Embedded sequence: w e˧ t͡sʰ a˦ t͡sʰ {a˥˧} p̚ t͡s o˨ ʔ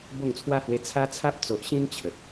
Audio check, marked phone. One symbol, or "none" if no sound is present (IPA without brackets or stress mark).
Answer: a˦